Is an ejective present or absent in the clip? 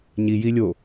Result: absent